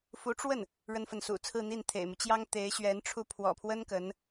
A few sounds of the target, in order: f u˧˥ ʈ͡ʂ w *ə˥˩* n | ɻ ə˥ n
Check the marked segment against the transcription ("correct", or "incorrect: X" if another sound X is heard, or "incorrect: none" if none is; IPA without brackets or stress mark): correct